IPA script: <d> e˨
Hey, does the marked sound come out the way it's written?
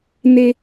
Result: no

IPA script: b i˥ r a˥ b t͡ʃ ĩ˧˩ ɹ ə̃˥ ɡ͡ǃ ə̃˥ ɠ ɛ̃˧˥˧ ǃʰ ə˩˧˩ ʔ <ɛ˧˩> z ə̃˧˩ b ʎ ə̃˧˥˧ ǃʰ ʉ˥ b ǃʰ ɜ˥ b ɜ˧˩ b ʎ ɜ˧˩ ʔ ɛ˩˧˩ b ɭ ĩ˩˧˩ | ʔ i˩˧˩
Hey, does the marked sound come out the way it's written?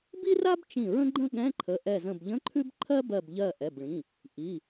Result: yes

